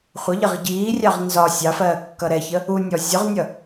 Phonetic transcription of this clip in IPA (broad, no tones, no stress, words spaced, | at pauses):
χʷəʎɪʁ ɟiːrʲɑʁ nzɒ sʲɑfɜː kːʌɾɛçə | unʲɔ zʲʊʁnʲʌ